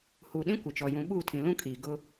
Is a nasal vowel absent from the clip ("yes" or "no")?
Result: no